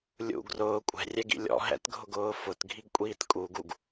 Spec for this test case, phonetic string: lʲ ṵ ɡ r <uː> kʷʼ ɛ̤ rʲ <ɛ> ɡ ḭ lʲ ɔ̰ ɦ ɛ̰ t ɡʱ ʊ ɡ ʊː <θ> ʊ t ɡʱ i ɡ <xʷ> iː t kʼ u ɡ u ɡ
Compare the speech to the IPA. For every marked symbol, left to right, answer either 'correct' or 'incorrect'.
incorrect, correct, incorrect, incorrect

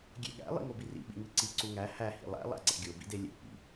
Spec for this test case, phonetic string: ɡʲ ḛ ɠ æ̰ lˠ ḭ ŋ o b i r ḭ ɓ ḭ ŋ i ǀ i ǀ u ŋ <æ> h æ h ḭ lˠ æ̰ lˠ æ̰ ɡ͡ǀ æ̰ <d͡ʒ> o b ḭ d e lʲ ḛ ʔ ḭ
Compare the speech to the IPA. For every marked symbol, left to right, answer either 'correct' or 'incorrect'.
correct, incorrect

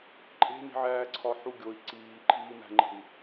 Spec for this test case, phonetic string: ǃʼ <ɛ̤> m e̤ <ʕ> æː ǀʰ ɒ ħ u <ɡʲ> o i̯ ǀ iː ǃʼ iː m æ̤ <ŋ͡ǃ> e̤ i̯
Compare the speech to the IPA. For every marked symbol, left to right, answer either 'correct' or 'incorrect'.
incorrect, correct, correct, correct

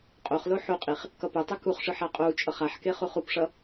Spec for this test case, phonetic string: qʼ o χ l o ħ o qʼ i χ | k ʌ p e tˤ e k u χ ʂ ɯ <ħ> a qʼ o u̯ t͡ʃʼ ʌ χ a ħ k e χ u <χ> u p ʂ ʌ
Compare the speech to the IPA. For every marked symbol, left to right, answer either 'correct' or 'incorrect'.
correct, correct

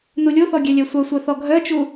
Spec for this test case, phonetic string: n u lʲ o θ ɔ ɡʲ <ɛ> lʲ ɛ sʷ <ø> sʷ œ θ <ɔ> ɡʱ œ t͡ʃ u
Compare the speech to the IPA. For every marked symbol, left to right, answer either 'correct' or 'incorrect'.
correct, incorrect, correct

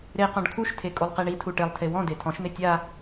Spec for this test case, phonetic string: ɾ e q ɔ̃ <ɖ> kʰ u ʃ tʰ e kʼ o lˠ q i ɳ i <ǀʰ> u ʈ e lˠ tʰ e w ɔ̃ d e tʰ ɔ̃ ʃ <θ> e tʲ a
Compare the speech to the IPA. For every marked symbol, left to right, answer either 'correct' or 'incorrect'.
correct, incorrect, incorrect

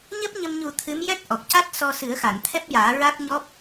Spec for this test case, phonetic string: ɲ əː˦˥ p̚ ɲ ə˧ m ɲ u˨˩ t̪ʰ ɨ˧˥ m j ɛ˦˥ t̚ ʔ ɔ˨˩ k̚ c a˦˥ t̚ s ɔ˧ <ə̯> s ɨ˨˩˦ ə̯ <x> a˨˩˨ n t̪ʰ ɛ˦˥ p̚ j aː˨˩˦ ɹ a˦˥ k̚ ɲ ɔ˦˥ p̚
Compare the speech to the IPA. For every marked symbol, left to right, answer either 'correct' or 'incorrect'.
incorrect, correct

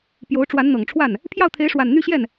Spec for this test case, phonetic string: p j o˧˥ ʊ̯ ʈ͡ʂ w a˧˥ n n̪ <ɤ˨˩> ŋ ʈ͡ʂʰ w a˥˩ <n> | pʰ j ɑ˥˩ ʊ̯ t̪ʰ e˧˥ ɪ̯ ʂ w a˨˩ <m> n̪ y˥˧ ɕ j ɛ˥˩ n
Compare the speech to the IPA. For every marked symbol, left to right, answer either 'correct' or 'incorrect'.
correct, correct, incorrect

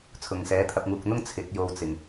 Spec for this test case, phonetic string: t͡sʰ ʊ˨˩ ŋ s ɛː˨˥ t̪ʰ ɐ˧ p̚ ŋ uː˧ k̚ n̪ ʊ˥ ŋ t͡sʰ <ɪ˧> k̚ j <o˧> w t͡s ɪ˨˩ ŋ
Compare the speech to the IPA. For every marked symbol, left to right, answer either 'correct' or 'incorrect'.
incorrect, correct

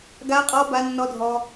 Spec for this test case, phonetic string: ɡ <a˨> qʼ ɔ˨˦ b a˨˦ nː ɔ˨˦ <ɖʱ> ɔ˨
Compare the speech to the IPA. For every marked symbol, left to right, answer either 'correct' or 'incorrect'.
incorrect, incorrect

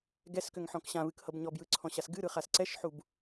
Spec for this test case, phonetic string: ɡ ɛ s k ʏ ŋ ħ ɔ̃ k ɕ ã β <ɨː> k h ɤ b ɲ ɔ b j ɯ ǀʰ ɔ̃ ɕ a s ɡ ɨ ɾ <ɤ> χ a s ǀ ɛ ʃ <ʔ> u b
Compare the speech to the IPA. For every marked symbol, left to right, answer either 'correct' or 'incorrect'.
incorrect, incorrect, incorrect

